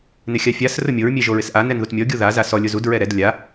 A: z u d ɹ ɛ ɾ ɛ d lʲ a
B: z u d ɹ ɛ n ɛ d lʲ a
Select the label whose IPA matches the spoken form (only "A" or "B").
A